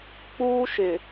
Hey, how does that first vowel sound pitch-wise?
high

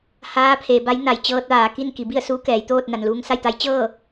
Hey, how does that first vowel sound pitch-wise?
rising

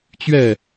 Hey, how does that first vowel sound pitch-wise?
falling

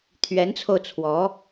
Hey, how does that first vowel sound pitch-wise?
rising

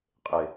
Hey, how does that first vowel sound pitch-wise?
low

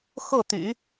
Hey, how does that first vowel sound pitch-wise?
falling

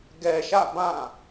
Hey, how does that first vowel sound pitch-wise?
low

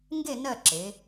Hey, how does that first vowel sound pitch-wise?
falling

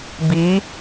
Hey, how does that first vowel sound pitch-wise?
rising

